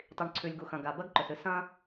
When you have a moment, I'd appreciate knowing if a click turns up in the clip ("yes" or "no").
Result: yes